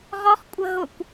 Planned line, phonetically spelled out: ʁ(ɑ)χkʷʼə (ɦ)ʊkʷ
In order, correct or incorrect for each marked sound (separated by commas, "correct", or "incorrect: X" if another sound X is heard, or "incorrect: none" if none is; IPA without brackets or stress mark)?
incorrect: ɔ, correct